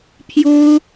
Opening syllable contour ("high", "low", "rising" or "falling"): high